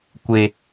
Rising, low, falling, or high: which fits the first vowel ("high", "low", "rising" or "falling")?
low